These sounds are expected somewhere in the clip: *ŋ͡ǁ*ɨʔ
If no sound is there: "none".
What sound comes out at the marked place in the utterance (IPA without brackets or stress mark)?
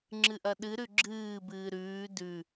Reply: ŋ͡ǁ